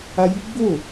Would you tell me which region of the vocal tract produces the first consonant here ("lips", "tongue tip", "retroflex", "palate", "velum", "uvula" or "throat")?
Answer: palate